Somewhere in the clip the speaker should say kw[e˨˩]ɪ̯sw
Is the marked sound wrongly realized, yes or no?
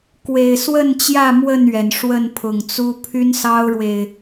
no